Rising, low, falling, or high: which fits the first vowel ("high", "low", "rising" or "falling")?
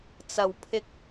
low